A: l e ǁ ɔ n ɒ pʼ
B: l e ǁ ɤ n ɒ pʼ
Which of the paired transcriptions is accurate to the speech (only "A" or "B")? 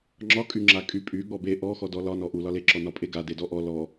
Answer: A